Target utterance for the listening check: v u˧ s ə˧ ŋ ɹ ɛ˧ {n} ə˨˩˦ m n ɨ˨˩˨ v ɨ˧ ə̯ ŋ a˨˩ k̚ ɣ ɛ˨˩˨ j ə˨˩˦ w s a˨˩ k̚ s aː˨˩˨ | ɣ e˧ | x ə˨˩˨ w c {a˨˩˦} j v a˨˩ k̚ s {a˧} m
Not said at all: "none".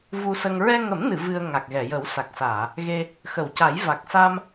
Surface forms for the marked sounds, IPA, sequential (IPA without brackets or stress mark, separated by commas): ŋ, a˨˩˦, a˧